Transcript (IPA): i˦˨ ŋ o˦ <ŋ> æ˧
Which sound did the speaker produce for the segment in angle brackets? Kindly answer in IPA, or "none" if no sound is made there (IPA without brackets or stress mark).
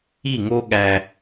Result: ɠ